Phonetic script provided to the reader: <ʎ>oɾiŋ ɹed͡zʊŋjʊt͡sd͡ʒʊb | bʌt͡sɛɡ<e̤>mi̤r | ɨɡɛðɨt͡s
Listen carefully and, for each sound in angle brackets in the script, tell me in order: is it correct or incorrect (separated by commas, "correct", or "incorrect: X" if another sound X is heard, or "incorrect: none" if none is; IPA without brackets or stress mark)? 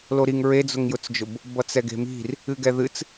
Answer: incorrect: l, correct